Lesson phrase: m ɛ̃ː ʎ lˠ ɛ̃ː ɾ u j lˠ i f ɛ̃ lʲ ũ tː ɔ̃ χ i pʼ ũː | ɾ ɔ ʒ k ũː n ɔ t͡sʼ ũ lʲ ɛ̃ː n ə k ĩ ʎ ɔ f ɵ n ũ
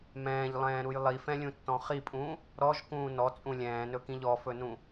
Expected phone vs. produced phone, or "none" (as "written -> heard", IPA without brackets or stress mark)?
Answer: ə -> ɵ